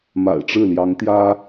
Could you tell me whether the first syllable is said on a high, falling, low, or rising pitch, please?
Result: low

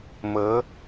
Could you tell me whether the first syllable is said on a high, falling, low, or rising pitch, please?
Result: rising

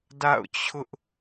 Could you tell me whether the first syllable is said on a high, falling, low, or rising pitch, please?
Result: falling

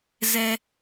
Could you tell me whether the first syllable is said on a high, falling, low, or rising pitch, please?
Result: high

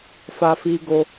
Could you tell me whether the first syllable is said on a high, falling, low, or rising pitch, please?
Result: high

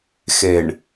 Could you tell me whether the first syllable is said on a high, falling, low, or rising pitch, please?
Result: low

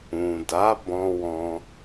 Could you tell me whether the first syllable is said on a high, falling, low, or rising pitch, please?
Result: low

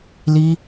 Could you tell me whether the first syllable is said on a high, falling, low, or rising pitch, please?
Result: high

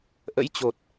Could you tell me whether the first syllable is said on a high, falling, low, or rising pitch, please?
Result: rising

